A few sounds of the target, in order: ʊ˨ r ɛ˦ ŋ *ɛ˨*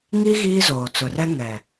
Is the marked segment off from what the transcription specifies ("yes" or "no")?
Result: no